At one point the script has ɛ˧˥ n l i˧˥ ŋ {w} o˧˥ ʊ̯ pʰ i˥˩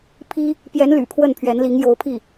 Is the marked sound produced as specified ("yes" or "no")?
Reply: no